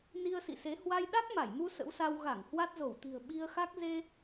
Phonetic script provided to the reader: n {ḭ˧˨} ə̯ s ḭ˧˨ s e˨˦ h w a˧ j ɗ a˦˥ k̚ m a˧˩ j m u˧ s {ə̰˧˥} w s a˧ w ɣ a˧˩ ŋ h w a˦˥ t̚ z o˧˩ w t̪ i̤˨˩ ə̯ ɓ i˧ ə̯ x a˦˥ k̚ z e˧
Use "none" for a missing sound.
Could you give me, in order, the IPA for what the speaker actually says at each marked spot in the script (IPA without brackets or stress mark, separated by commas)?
i˧, ə̰˧˥